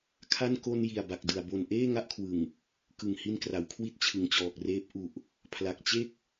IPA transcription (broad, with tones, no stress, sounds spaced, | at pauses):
kʰ a˥˩ n k o˧ n j i˨˩ a̯ b a˨˩ k̚ d ɯ˨˩ a̯ b o˨˩ n ʔ eː˥˩ ŋ a˥˩ ʔ kʰ w ɯ˨˩ ŋ | k ɯ˨˩ ŋ h i˧ n k r a˩˦ w kʰ w i˦˥ t̚ t͡ɕʰ ɯ˨˩ ŋ t͡ɕ ɔː˨˩ k̚ r eː˦˥ p̚ ʔ u˨˩ ʔ | pʰ l a˨˩ k̚ t͡ɕ e˥˩ k̚